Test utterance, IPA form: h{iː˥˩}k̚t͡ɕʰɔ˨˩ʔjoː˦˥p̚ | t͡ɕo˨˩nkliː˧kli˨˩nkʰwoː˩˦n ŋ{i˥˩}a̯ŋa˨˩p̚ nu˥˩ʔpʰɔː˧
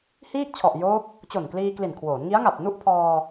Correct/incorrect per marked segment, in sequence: correct, incorrect: i˦˥

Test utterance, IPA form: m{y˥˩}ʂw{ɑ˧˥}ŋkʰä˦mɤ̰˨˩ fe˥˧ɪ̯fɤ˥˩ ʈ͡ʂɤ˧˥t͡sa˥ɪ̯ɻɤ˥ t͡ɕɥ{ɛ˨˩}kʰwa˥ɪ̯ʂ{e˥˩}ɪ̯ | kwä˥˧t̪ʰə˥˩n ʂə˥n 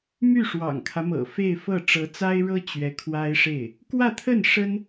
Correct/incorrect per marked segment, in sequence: correct, incorrect: ɑ̰˨˩, incorrect: ɛ˧˥, correct

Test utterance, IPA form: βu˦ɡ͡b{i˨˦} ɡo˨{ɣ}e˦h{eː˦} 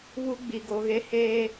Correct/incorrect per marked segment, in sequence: incorrect: i˨, correct, correct

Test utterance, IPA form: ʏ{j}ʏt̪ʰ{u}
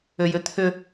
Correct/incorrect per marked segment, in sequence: correct, incorrect: ʏ

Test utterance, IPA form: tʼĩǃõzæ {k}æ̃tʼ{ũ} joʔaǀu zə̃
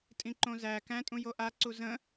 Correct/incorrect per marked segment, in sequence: correct, correct

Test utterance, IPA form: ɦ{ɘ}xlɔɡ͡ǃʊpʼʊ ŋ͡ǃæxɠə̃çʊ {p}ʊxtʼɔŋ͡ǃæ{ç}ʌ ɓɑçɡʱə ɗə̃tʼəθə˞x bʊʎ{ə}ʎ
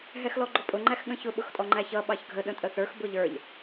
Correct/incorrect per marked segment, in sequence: incorrect: ɛ, incorrect: ɓ, correct, incorrect: ə˞

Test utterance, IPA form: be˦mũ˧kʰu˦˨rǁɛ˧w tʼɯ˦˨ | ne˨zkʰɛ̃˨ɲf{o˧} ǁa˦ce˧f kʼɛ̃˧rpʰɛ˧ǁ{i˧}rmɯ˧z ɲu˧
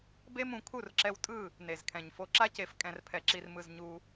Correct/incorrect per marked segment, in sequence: correct, correct

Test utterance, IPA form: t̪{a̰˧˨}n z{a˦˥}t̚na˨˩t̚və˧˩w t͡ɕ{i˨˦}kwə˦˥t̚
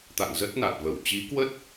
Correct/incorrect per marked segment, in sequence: correct, incorrect: ə˦˥, correct

